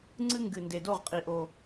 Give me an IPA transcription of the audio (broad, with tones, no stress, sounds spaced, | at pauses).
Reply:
ŋ͡ǀ ɨ˦ ŋ ɡ ɨ˨˩ n d e˨˩ d o˥˨ ʁ qʼ i˨˩ ʔ o˨˩